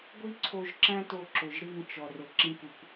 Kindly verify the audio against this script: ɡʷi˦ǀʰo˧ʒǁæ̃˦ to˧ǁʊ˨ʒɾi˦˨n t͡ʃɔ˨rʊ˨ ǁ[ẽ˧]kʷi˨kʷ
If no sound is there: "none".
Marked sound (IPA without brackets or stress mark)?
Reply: ĩ˧